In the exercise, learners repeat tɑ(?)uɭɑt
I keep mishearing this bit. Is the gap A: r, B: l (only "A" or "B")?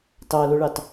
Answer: B